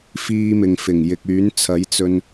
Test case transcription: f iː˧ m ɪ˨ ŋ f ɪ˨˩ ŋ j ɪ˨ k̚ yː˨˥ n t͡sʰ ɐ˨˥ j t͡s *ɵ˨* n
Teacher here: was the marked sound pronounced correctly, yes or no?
no